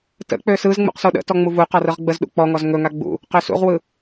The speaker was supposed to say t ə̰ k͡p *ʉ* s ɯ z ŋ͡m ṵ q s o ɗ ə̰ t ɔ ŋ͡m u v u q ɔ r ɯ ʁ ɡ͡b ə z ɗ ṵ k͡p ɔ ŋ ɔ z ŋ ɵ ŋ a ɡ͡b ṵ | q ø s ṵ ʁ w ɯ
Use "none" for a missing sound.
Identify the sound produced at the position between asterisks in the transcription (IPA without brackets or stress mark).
ø